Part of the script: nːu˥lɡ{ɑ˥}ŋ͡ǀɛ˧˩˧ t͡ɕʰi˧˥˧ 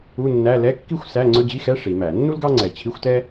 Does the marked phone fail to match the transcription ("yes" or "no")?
no